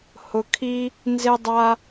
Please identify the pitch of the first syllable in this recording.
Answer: low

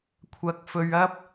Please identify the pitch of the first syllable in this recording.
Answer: low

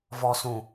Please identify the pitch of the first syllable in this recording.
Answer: low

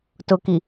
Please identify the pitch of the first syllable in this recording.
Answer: low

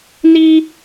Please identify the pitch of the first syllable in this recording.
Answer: high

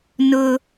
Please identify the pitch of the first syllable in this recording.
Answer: high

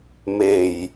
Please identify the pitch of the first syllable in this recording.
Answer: low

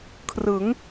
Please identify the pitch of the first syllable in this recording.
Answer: rising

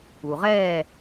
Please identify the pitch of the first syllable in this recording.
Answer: low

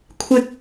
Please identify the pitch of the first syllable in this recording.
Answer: high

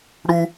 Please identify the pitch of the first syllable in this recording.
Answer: high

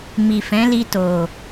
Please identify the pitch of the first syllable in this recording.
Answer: low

